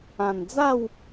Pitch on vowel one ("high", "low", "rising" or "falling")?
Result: low